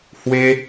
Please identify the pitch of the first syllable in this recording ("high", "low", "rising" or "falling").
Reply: high